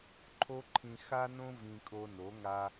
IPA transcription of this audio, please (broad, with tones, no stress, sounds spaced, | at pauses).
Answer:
ǃʰ o˦ ǃʰ ĩ˧ x a˦ n õ˦ v ĩ˧ kʼ o˧ n o˨˦ ŋ a˧